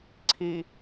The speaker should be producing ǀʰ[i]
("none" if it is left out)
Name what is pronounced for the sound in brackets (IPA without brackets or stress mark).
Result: i